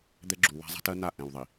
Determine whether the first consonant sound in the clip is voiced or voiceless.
voiced